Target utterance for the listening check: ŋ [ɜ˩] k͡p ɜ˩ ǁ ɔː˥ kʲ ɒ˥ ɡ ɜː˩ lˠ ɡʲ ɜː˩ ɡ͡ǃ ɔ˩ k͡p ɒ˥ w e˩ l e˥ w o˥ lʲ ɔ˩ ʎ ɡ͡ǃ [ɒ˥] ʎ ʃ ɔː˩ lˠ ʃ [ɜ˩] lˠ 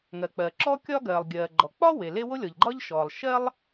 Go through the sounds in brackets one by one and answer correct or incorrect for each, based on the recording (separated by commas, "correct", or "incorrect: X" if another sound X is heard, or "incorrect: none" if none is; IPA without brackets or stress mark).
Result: correct, correct, incorrect: ɜ˥